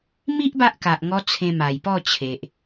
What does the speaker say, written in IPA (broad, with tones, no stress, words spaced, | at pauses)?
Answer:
mi˦ʔ ba˦ʔka˨ʔ ŋɔ˧ t͡sʰẽ˧ma˨˩jpɔ˥˧t͡ɕʰe˨ʔ